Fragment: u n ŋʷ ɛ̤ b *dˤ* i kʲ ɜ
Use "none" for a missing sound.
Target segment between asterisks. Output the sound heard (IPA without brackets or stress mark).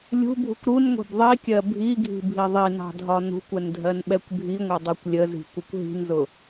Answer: ðˤ